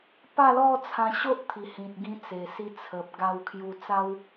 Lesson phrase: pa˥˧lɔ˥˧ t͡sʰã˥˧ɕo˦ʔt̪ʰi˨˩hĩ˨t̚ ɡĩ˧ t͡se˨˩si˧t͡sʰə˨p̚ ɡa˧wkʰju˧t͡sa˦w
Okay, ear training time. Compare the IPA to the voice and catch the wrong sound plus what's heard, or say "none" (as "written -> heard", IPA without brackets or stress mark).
ã˥˧ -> ã˧